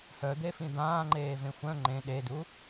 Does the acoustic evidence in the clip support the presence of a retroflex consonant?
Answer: no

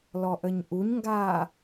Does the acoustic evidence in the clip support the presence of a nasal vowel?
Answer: no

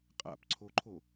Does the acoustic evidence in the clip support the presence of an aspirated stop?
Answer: yes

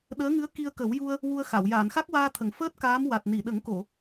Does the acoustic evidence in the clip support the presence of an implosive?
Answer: yes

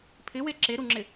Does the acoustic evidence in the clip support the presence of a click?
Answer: yes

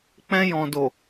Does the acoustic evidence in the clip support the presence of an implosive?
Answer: no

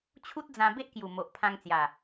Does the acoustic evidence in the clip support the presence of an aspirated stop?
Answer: yes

